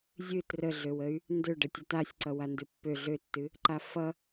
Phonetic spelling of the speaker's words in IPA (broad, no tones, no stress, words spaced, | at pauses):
zʲɨ trəɮøwəy̯ | ndø ɖətʲətasʲǀʌ wandɨpːø ɮøtːɨ | ǃafʌ